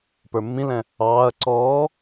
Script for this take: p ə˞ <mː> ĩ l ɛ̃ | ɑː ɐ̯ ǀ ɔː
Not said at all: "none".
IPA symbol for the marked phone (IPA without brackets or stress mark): mː